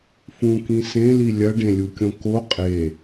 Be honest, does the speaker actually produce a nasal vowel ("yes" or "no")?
yes